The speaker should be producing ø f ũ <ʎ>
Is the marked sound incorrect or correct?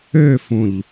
correct